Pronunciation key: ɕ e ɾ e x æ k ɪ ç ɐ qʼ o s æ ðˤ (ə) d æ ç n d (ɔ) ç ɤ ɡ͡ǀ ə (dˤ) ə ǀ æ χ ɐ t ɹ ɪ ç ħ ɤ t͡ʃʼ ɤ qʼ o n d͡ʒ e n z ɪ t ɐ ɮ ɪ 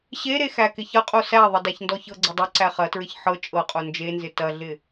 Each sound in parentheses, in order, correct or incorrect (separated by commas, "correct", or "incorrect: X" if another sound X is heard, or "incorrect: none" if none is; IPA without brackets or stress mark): correct, correct, correct